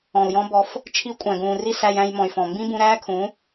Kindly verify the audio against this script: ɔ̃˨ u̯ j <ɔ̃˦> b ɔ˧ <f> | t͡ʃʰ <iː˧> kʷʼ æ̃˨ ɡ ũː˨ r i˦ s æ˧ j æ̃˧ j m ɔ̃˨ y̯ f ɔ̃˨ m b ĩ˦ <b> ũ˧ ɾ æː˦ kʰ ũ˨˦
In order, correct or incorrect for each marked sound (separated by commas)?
correct, correct, incorrect, correct